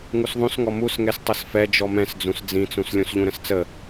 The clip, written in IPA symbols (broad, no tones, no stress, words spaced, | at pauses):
ŋusðˤũsŋɔ musŋɛs tˤɤsfɛ d͡ʒɔmɛ̃sd͡zũs d͡zĩt͡sũs lʲũsʎũɾə̃st͡sə